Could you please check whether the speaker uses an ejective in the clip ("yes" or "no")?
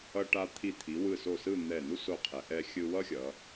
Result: no